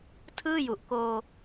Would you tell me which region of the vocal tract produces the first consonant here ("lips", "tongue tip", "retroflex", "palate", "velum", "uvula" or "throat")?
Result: tongue tip